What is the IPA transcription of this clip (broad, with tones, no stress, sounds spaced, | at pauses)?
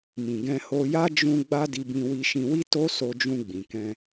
m ĩ˨ ɡ ɛ̃˧ h o˧ j a˦ d͡ʒ ũ˧ ɡ͡b a˦ d i˧ b ĩ˧ w i˧ ʃ ĩ˧ w i˦ t o˦ s o˧ d͡ʒ ũ˧ ɡ͡b ĩ˨ k ɛ̃˧